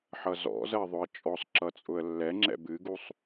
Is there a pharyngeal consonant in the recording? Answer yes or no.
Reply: yes